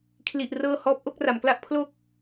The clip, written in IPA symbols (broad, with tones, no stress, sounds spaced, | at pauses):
kʰ l i˥˩ ʔ r ɤː˥˩ h ɔː˦˥ p̚ ʔ o˥˩ k̚ r a˩˦ m k l a˥˩ ʔ pʰ l o˥˩ k̚